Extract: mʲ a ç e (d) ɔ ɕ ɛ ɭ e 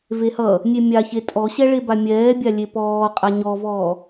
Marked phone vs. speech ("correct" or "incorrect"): incorrect